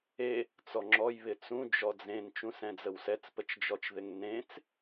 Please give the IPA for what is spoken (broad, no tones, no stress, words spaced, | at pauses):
e | t͡sɔŋ͡ǁɔj βɪt͡sũ d͡ʒɔd͡zẽn t͡ʃũsɛ̃d͡zəwsɛt͡s pət͡ʃd͡ʒɔt͡ʃðɪŋnẽt͡s